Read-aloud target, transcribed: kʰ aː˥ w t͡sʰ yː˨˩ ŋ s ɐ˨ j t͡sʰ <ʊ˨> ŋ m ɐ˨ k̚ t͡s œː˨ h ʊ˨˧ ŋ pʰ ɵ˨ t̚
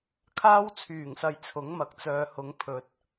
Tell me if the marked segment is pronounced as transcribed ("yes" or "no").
no